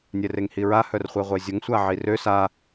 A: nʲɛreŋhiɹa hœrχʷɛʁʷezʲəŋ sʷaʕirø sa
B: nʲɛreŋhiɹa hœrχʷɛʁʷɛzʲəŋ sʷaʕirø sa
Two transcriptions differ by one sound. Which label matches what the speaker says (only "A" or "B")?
A